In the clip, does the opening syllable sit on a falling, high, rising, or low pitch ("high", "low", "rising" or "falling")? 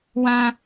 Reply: high